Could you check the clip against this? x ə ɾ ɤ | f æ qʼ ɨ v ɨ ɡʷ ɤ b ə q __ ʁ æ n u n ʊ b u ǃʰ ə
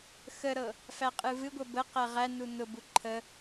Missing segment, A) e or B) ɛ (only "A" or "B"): B